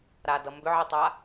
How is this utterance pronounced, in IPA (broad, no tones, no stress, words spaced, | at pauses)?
ɾadʌ mbʏʕitˤa